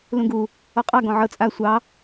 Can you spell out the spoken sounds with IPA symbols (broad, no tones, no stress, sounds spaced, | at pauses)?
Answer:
l ũ ɡ u | ɔ qʼ ɑ ɡ ɔ̃ ʕ ɤ t͡sʼ a sʷ ɑ